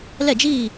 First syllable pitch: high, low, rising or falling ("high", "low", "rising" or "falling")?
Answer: falling